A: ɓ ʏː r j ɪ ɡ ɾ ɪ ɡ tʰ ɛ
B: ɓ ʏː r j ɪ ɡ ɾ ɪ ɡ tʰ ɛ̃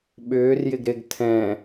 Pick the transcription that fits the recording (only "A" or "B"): B